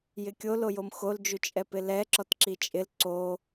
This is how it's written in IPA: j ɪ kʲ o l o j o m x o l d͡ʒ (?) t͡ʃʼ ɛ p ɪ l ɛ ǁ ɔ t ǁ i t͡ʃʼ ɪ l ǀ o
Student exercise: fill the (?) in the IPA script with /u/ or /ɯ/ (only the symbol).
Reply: u